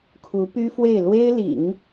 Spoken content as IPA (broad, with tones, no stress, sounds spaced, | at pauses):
kʰ u˧˥ p y˥ f w e˥˩ ɪ̯ l w e˥ ɪ̯ l ḭ˨˩˦ ŋ